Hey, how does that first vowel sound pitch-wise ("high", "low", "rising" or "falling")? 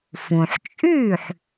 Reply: low